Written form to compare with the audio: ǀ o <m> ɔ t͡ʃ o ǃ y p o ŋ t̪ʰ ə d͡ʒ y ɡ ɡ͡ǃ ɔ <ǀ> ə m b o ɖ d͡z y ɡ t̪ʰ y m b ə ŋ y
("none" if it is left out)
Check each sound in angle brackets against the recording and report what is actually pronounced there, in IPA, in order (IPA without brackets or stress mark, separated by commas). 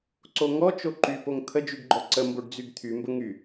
ŋ, ǀ